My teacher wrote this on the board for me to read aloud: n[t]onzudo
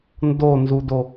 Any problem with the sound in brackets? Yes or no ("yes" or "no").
yes